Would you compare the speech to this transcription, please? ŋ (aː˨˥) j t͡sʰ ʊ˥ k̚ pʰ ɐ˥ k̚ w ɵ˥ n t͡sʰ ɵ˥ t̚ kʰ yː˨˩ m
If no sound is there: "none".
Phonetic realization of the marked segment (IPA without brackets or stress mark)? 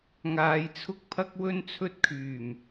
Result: aː˨˧